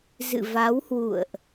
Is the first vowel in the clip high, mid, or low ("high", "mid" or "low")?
high